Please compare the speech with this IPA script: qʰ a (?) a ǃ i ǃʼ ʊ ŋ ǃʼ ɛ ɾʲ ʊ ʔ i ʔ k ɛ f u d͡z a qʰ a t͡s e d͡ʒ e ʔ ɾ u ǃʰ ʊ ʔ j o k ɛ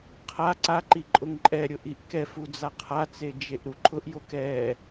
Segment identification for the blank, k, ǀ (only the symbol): ǀ